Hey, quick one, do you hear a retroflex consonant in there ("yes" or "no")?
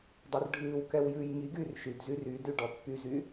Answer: yes